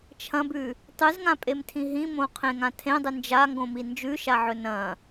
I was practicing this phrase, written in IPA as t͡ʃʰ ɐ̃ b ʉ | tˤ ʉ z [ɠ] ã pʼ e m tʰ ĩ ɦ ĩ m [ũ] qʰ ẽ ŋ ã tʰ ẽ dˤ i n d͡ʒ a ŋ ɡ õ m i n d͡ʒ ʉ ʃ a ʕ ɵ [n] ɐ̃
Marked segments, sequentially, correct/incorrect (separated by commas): incorrect, incorrect, correct